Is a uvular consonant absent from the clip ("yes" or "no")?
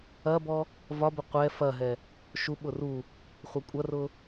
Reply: no